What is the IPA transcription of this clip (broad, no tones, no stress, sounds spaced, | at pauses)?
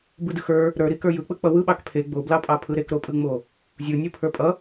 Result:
b ɯ d ɯ x ə˞ | ɾ ə˞ ɾ i k ə˞ j ɯ k͡p ɯ k͡p ʌ w ɯ ɓ ɑ k pʰ e ɡ͡b o b l ɑ pʼ ɑ pʰ ɯ ɾ e k ɾ o pʼ ɯ ŋ͡m o | zʲ ɯ nʲ ɯ pʰ ə˞ pʼ ʌ